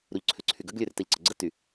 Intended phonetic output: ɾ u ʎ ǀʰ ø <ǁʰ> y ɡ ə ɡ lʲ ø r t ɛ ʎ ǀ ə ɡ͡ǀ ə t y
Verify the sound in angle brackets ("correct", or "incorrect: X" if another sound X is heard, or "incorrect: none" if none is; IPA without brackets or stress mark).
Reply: incorrect: ǀʰ